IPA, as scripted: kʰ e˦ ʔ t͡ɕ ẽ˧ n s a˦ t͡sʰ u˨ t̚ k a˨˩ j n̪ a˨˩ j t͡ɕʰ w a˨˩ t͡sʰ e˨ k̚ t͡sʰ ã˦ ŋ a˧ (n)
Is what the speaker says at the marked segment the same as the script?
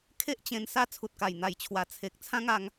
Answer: no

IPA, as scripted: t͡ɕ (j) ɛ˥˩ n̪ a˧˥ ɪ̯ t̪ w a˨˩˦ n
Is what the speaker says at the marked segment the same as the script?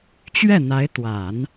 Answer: no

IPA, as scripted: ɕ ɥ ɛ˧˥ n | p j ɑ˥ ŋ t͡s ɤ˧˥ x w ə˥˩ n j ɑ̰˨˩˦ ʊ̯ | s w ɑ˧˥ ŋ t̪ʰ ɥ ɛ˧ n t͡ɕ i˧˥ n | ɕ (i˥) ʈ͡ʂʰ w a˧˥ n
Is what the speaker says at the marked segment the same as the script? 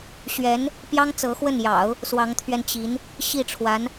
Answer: no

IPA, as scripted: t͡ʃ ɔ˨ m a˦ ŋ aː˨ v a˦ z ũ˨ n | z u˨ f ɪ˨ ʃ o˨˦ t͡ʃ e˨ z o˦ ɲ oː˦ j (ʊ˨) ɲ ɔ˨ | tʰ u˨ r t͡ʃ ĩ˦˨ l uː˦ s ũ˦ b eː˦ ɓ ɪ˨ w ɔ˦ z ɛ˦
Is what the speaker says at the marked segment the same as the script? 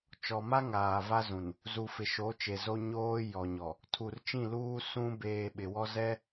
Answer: no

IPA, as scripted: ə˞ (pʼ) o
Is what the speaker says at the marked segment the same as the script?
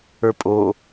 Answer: yes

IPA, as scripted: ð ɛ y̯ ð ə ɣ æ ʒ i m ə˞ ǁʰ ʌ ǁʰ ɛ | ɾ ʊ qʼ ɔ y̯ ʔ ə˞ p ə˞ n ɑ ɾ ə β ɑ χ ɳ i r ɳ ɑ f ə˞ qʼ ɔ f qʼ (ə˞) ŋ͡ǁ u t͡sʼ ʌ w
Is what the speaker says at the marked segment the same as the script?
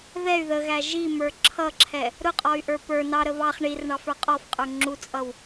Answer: yes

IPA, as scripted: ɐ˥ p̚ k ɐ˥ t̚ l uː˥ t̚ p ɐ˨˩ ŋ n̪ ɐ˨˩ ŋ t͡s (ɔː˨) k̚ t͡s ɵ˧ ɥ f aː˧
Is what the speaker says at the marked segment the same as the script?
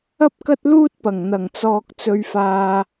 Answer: yes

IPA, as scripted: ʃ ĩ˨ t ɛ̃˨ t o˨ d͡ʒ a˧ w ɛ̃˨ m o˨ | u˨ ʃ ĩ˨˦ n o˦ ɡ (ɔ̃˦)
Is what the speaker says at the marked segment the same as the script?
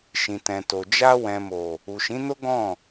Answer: no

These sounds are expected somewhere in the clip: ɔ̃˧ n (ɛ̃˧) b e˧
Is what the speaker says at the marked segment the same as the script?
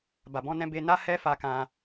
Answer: yes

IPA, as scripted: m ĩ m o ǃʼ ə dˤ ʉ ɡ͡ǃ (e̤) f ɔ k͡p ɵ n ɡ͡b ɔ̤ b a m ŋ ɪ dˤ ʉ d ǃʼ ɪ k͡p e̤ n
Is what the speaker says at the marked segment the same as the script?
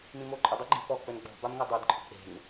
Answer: no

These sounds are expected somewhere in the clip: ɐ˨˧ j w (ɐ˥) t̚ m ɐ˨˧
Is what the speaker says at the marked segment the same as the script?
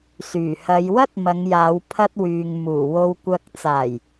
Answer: yes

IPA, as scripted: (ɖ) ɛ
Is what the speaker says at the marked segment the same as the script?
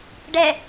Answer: yes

